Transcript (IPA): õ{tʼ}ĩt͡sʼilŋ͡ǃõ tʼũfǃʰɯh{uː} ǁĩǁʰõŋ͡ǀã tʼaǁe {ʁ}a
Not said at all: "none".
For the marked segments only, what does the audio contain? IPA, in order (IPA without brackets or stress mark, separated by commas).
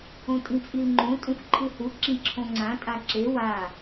tʼ, u, w